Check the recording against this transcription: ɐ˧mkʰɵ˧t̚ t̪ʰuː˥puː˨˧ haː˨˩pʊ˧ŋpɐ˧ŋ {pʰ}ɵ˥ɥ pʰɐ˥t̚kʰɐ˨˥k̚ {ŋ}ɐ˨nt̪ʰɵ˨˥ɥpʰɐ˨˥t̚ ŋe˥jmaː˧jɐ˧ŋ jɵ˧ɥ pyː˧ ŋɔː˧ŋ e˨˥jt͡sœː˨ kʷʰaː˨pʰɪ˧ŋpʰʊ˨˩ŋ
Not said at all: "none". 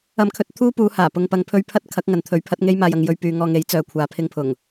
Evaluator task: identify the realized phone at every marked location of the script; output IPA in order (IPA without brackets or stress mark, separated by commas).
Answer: pʰ, ŋ